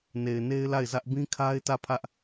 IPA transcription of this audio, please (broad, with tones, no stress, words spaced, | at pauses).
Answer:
ne˨ɪ̯ne˦ɪ̯la˦˨ɪ̯zä˦ʔ bĩ˦kʰa˦ɪ̯tä˦˨pʰä˦ʔ